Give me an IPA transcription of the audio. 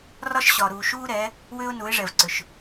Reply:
r ɒ˦ ʃ ɕ ɒ˨ ɾ uː˨ ʃ uː˦ ɾ ɛ˨˦ | w ʏː˦ ʊ̯ n u˨˦ ɪ̯ ʐ ɛ˨ v ǀ ʏ˨ ʃ

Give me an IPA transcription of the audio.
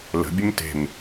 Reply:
l ə̤ bʲ ə m t e̤ m

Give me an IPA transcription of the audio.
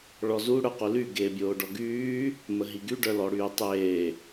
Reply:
ɭ ɔ z u ɽ œ q u l y ɡ eː bʲ oː ɖ ɔ ɡ yː | m ə ɦ i ɡ y ɖ œ l ɔ ɽ yː tˤ eː

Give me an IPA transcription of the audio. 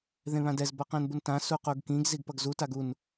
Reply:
ð ẽ β ã d ɛ z b ʌ q ɛ̃ n b u n t ã s u q u ɡ k ĩ ɡ z i ɡ p ʌ ɡ z u t a ɡ u n

